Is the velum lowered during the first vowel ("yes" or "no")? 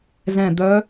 yes